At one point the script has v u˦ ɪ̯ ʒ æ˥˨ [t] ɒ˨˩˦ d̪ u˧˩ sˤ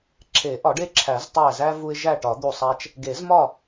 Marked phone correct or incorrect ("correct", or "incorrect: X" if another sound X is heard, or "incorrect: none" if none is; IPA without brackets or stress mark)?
incorrect: ʈ